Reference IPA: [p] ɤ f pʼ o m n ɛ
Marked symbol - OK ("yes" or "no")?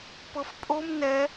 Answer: yes